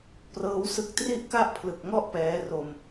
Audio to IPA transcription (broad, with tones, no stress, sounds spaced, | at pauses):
p r ɤː˦˥ w s ɯ˥˩ k̚ t r i˥˩ ʔ k a˥˩ ʔ pʰ l ɯ˨˩ k̚ ŋ ɔ˥˩ ʔ p ɛː˦˥ r o˧ m